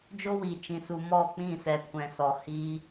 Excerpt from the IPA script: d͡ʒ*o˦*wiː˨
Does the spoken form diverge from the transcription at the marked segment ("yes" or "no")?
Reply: no